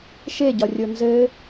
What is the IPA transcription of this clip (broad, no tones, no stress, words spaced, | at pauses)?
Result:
ʃeɟɒrʲo nzɘ